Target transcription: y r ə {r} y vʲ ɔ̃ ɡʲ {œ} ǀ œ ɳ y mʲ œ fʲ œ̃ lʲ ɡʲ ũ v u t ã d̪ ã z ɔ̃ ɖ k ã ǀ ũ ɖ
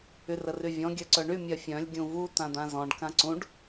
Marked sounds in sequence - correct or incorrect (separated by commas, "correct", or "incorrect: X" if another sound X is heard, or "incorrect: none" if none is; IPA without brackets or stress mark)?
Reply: correct, correct